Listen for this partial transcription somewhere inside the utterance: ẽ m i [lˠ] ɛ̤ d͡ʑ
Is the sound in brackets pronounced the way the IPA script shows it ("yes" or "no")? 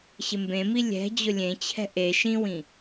no